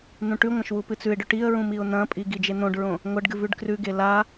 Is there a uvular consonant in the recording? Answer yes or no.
no